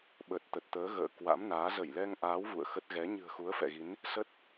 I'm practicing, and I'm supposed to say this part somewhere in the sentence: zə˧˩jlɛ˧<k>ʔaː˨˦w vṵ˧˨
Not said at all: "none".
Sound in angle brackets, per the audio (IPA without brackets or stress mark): ŋ